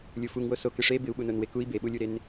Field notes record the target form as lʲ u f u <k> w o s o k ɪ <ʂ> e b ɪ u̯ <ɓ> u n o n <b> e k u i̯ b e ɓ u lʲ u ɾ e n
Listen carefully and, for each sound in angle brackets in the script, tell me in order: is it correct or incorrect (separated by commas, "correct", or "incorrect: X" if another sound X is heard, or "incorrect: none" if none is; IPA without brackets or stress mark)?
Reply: incorrect: ŋ, correct, correct, incorrect: w